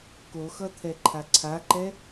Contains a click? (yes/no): yes